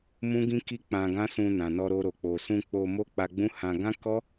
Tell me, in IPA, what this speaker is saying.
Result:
m ũ˦ ɡ ĩ˦ k i˦ k͡p ã˧ ɡ ã˦ s ũ˧ n ã˨ n ɔ˧ ɾ o˧ ɾ o˨ k͡p o˨ s ũ˧ k͡p o˧ m o˦ k͡p a˧ ɡ͡b ũ˦ h ã˧ ɡ ã˦ k ɔ˦

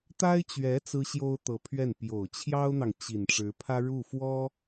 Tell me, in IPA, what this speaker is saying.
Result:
t̪ a˥ ɪ̯ t͡ɕ ɥ ɛ˧˥ t͡s ɹ̩˥ ɕ j o˥ ʊ̯ t̪ ɤ˧˥ pʰ ɥ ɛ˥˩ n p j o˨˩ ʊ̯ t͡ɕʰ j ɑ˥ ʊ̯ n̪ ɑ˨ ŋ t͡ɕ i˨˩ n ʈ͡ʂ ɻ̩˧˥ pʰ ä˥ ɻ u˥˩ f w ɔ˥

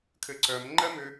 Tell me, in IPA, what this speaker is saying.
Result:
kʰ ɘ ǀ œ m ŋ͡ǃ ɜ m ʏ

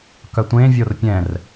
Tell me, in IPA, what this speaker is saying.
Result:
k œ tʷ ẽ vʲ o r pʲ ɛ̃ r

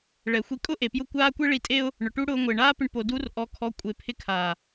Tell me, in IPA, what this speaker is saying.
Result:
ɭ ɛ˨ xʷ i˧ kʼ ʊ˦ ʔ e˨ p j ʊ˦˨ kʷ aː˦ kʷ e˦ ɭ i˧ tʼ e˦ ʊ̯ | ɳ ʊ˨ ʈ u˦ ɽ ʊː˧ ŋʷ ɪː˨ ɳ aː˦ p ɪ˧ ɳ p o˧ d u˧ r ʔ ɔ˧ kʰ ɔ˧ kʷʼ e˨ pʰ ɪ˧ kʰ aː˨

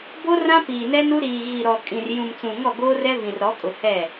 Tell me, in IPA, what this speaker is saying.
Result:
b o˦ r ã˦ p iː˨ n ɛ˦ n u˦ ɾ iː˨ ɣ i˨ ɾ ɔ˨ kʼ ĩ˨ r j ũ˨ m t͡s ũ˨ ŋ ɔ˦˨ ɡ oː˦ r ɛ˦ v ĩ˨ r ɾ ɔ˨˦ kʼ ʊ˨ h ɛ˦˨

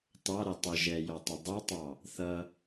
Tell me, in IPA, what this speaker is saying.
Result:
t ɑ ɾ ɛ tˤ ə ʒ ɛ j ɔ tˤ ʊ dˤ ʌ tˤ ɑ | θ ʌ

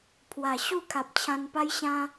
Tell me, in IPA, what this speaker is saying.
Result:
pʰ w a˨˩ ɕ u˥˧ kʰ a˨ p̚ t͡ɕʰ ã˧ n p a˦ j ɕ ã˦

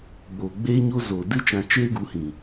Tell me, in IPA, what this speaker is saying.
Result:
ɡ͡b oː˨ ɡ͡b eː˦ ɲ o˦ z o˨ d ɨ˦ t͡ʃ ã˧ t͡ʃ eː˦ ɡ u˨˦ h ĩ˨

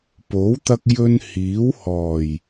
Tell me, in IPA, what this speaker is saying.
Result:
p o˨˥ w t̪ ɐ˧ k̚ j ɵ˥ n h iː˨˥ w h ɔː˨˩ j

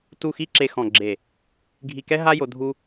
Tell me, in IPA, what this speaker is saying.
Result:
t u˦˨ x i˦ ǁ e˧ x ɔ̃˨ ɡ͡ǁ e˨ | ɡʱ i˨ k ɛ˧ ɦ a˦ j o˧ dʱ u˧

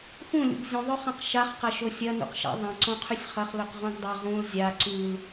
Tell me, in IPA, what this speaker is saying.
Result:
x ũ lʲ ṵ ɡ zʲ ũ ðˤ ɵ χ ã q ʃ a χ q ɐ ʃ o sʲ ɐ n ṵ q ʃ a̰ ðˤ ɐ̃ ǀ õ qʰ ʉ sʲ χ ɐ χ l ɵ q ʁ ũ ɡ dˤ ɐ ʁ ũ l zʲ a ǀ ʉ l

